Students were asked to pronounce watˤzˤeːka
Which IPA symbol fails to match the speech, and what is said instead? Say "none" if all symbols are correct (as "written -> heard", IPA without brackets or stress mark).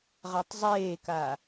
w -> ʁ